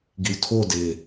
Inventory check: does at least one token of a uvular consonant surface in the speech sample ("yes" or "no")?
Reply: no